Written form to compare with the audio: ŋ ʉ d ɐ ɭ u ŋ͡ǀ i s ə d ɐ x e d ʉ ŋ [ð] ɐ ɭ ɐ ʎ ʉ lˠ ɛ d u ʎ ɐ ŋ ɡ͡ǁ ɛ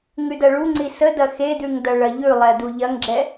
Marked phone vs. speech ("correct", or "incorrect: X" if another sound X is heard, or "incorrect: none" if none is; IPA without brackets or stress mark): incorrect: d